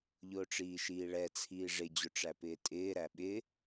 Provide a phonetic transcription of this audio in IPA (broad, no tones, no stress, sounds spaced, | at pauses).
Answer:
ʎ ʊː ʈ͡ʂ iː ʃ iː ɭ ɛ t͡sʰ iː ʐ ɪ d͡ʑ ʊ ʈ͡ʂ æ p ɪː tʼ ɪː ɾ æ ɓ ɪ